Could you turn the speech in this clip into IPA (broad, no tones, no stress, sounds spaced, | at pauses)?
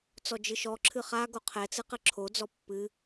t͡s ɔ d͡ʒ ɨ ʃ ɔ ǁʰ ɨ χ a ɡ o qʰ ɛ t͡s ɨ q ɘ ǁʰ o d͡z ɔ pː ɨ